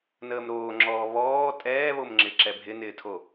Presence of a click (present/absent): present